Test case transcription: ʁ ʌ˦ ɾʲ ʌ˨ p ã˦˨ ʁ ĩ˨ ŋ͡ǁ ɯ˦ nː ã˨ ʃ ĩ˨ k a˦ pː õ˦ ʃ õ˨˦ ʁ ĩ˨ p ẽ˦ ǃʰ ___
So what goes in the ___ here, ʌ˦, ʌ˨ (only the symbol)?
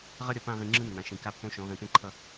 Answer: ʌ˦